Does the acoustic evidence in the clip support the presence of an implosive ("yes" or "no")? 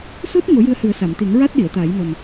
yes